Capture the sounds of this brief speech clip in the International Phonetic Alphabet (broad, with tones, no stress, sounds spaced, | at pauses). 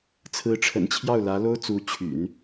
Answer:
t͡sʰ ɹ̩˧˥ ʈ͡ʂʰ ə̰˨˩ n t͡ɕʰ j ɑ˥˩ ʊ̯ l ä˧˥ l o˥ ʊ̯ t͡s u˧˥ t͡ɕʰ y̰˨˩˦ n